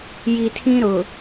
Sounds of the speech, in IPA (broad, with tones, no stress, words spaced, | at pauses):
ji˨tʰĩ˦ ɾʊ˨